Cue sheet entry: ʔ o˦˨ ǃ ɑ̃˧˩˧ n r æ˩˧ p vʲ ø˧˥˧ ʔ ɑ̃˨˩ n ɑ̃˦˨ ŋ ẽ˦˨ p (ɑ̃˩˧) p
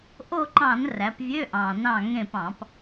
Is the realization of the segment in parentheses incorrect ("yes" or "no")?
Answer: yes